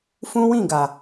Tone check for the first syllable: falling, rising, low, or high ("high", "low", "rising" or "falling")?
high